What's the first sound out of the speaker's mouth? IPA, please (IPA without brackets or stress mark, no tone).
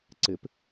ǀ